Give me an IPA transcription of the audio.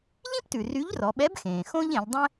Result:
ʎ ĩ˥ p t ʉ˩ r y˧˥ ʎ r ɔ˩˧ ɓ ɛ˧˥ b x ẽː˩ x õ˥ ʎ ẽ˩˧ ʎ dˤ ɛ̃˥

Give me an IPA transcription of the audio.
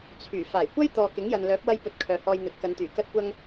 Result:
t͡sʰ yː˨˩ f aː˨˩ j kʷ ɐ˥ j t̪ ɔː˨ k ɪ˨˥ ŋ j ɐ˨ n l œː˨˥ p̚ w ɐ˥ j p ɵ˧ t̚ kʰ œː˨ h ɔː˧ j n̪ ɵ˨˥ t̚ k ɐ˨˧ n t̪ yː˨˩ k ɐ˥ t̚ kʷ ɐ˥ ŋ

